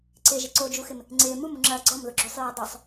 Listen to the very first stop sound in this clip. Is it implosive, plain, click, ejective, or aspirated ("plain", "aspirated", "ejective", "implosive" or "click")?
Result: click